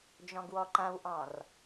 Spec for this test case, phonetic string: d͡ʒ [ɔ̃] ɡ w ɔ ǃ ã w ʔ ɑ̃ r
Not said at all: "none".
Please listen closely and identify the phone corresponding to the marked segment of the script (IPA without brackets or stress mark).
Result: ɔ̃